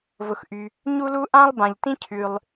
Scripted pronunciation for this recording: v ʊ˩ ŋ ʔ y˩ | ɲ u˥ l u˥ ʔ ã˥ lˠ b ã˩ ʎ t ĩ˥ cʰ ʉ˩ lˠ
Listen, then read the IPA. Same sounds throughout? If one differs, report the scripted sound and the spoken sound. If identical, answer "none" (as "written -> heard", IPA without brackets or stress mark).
ŋ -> x